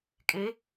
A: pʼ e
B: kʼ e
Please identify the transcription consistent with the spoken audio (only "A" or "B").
B